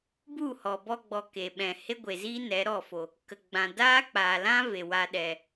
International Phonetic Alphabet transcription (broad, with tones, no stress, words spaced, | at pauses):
bu˦˨hɔ˨bɔ˧ɡ͡bɔ˨ ke˨ɓɛ̃˨ he˦ɡʷe˨ziː˦ nɛ˨˦ ɾɔ˦˨fo˨ | kə˧ɡ͡bã˧ daː˦k͡paː˨lã˦ ve˨wa˧ɗɛ˨